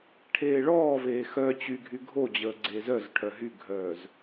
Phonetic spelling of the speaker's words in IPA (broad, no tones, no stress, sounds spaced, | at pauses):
ʈʰ eː ɭ ɔː v eː x œ t͡ɕ y ɡʱ y ɡʱ o d͡ʑ əː ɡ͡ǀ eː z œ z ʈʰ œ ɦ y ɡʱ œː z